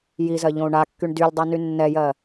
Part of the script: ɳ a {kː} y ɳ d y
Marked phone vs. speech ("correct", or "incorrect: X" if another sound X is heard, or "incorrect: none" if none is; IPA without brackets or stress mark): correct